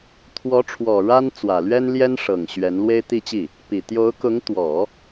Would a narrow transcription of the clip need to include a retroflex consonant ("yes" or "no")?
yes